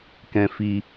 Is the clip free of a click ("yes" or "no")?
yes